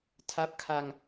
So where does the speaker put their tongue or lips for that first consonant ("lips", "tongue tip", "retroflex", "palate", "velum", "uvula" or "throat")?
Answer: tongue tip